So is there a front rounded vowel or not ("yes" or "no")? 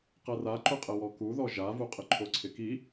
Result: no